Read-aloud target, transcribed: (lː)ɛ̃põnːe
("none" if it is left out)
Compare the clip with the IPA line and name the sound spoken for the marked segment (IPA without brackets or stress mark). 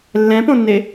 lː